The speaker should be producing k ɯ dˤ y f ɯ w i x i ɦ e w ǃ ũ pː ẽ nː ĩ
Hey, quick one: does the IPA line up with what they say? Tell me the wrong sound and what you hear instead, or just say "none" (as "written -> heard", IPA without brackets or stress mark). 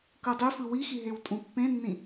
ǃ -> tʼ